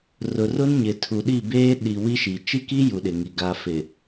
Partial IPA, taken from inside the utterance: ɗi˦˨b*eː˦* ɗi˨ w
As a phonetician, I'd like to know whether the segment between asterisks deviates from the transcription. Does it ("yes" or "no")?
no